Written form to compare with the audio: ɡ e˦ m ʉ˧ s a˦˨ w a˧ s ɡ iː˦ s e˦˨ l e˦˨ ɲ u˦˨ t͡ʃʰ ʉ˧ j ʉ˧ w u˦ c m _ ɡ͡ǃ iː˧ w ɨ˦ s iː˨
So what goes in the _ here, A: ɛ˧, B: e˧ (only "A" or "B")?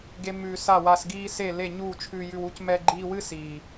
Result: A